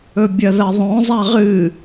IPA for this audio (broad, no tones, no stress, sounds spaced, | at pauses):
ɵ bʲ ɐ ð ɐ ðˤ õ zˤ a ʁ ɨ